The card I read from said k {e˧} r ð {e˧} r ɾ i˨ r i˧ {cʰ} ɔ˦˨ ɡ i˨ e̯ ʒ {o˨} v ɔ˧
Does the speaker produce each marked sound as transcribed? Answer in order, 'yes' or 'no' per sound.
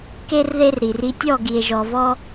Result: yes, yes, no, no

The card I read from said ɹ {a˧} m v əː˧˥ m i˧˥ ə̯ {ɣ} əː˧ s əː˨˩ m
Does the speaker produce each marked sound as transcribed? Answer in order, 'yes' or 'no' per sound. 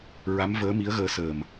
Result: no, yes

